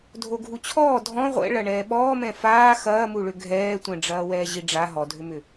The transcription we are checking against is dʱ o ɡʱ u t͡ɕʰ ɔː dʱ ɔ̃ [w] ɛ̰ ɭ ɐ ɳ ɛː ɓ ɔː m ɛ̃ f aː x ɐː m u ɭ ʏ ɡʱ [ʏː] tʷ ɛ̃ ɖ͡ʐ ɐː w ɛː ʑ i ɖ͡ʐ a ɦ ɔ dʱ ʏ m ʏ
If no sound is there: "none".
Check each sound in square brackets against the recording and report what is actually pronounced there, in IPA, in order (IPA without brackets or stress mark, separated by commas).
ʁʷ, ɛː